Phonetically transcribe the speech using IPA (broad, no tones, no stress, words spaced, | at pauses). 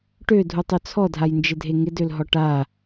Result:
ʈødʱutˤø t͡sʰɔdʱajnd͡ʒɪdʱe ŋɪdølɦɔ ʈa